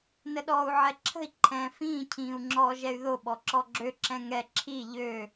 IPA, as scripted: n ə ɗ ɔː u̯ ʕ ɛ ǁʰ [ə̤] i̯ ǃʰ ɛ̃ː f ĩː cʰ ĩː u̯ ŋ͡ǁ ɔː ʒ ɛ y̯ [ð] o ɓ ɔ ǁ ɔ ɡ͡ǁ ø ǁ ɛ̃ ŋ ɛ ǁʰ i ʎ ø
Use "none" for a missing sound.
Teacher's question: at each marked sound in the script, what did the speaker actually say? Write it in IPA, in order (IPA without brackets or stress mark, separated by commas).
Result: ə̤, ð